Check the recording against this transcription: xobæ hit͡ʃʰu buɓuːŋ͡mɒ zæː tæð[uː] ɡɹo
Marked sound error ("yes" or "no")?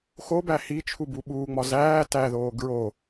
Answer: yes